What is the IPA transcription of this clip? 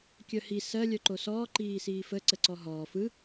kʲ œ h i s ɜ lʲ œ ǃ o s ɔː ǃ iː s iː f ə ǀ ə ǀ ɔ ɦ ɔː f ɯ

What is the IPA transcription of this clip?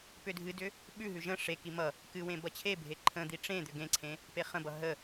p ʏ dʱ ɨ d ʏ | ɓ ʉ ɦ ʉ ʒ ə̃ ʂ e k i m ʌ | k ɨ w ẽ b ʌ t͡ɕʰ e bʱ e ǃʰ ə̃ d̪ i ʈ͡ʂ ẽ d̪ ʏ ɡ ẽ ǀʰ ẽ | p e χ ə̃ b ʌ ɦ ə

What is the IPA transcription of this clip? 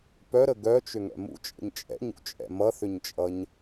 p œ ɾ ə ɡ œ t͡ʃ ʏ ŋ ɛ̰ m ṵ t͡ʃʼ ə̰ ɲ t͡ʃʼ ɛ̰ ɲ ṵ t͡ʃʼ ɛ̰ m ʌ θ ʏ ɲ t͡ʃʼ ʌ ɲ

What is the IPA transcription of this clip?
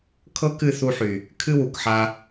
kʰ ɤ˦ k ɨ˦˨ θ u˧ ħ y˨ | kʰ ɨ˦ w u˨ k ħ a˧

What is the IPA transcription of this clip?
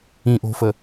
ĩ ʔ o̤ f ə

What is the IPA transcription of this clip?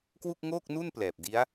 k w u˥˩ k̚ ŋ oː˥˩ k̚ n u˥˩ n p l ɛː˨˩ p̚ d i˦˥ a̯

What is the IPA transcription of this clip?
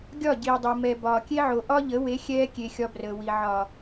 ɡʲ ɒ˦˨ ɟ iː˨ dˤ ɤ˨ m ɛ˨ b ɒː˨ kʲ e˦ ʕ o˨ ʔ ɒ˦ ʎ ə˨˦ w e˨˦ xʲ ɛː˦ kʲ e˨ xʲ ɒ˦ b r əː˨ w i˨ ʕ ɒ˨

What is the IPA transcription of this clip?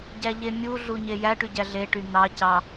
ɟ æ ʎ e mʲ u ɮ u ɲ e j æ ʈ y ɟ æ ɮ e ʈ y n̪ ɑ c ɑ

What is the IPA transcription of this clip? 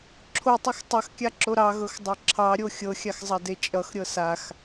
ǁʰ o tˤ ɐ x tˤ ɐ x kʲ a ǁ o ɾ ɑ ɣ ɤ x dˤ ɤ ǁʰ ɑ ɾʲ o xʲ ɤ xʲ a x zˤ ɐ d e t͡ʃʼ ʌ x ɾʲ ɤ s a x

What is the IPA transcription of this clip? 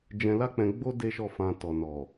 d͡ʒ ɛ̃˧ l a˦ k͡p ɛ̃˧ ɡ͡b o˦ d e˦ ʃ ɔ˦˨ f ã˧ t ɔ˨ n ɔ˨

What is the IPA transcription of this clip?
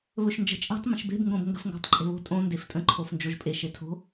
β ɵ ʃ n d͡ʒ ə̤ t͡ʃʼ e̤ tˤ m ə̃ ʃ b e̤ b ŋ ɡ õ b ŋ ɡ ə̤ f ŋ ɡ o̤ tˤ ǃʼ e̤ β o̤ tʼ õ n d e f tʼ ə̃ ǃʰ o f n d͡ʒ o ʒ pʼ e ʃ e tʰ o̤

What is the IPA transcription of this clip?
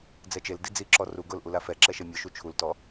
d͡z ɛ t͡ʃ e l d i d͡z i ǁ ɔ r u ɡ ʊ l ʔ u l a f ɛ ǁ ɛ ʃ e mʲ ʊ ʃ u t͡ʃʰ u l t ɔ

